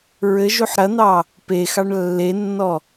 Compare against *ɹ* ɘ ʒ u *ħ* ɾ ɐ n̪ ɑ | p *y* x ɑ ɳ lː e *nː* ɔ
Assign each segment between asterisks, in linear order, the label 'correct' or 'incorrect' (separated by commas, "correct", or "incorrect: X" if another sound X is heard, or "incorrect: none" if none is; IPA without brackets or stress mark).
correct, correct, incorrect: e, correct